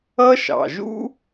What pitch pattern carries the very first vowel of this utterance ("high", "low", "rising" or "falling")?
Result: high